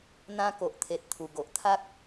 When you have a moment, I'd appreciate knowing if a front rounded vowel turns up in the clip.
no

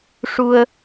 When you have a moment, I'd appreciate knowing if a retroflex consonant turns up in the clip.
yes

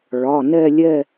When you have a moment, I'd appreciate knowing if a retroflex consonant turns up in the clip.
yes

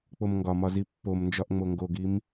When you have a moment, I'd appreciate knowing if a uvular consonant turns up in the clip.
no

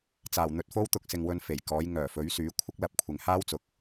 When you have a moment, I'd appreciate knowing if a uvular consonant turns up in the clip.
no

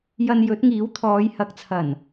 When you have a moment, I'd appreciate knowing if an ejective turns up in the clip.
no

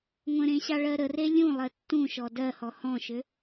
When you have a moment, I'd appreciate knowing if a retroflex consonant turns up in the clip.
yes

